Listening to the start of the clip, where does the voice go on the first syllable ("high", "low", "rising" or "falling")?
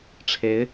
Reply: rising